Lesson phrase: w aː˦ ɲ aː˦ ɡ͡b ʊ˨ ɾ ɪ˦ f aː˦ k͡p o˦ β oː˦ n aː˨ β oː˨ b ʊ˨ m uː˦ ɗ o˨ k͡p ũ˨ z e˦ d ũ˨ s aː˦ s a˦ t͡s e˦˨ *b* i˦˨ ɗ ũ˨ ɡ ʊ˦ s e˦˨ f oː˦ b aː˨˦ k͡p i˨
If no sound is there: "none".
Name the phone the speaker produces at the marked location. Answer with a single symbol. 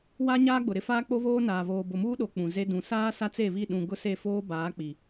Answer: β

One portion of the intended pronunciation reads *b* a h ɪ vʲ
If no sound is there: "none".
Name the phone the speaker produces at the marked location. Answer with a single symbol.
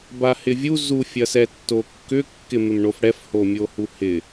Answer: b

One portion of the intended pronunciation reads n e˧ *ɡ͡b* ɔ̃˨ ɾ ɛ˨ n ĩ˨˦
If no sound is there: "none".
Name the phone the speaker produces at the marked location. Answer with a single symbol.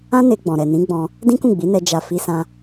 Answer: ɡ͡b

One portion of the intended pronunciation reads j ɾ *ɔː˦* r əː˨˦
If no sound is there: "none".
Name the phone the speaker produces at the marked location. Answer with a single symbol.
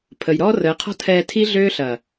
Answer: ɔː˦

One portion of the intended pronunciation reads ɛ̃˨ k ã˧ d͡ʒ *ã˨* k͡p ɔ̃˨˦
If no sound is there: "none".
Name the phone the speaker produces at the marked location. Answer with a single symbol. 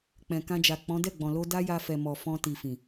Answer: a˨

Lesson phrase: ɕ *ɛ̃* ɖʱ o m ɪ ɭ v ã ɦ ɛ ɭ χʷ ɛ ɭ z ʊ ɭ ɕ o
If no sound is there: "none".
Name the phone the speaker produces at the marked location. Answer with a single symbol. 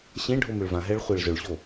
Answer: ẽ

